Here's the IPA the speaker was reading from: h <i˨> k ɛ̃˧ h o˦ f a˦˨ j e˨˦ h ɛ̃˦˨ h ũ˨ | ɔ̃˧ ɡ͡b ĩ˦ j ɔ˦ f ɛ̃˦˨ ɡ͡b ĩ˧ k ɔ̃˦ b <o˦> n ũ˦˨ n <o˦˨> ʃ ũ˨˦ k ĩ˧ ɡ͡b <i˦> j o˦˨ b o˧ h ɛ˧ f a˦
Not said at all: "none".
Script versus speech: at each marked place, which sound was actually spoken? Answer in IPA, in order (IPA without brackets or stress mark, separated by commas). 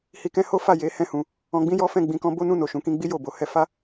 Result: i˨, o˦, o˨, i˦